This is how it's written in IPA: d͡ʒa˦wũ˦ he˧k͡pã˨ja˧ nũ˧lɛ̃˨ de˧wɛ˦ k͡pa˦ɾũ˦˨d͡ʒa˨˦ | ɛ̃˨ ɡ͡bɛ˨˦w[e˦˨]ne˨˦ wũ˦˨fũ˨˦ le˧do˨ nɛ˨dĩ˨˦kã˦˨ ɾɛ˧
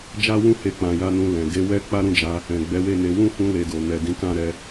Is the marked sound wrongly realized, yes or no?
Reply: no